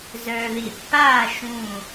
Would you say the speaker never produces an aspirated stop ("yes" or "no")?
yes